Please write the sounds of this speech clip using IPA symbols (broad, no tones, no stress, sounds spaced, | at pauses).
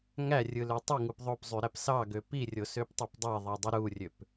ŋ æ rʲ ɯ l ø tˤ i ŋ u p ðˤ o p zˤ y ɾ æ p s ɑ ɡ ø p i rʲ o s ø p tˤ ø p dˤ e ðˤ i dˤ ɯ ɾ u rʲ ø p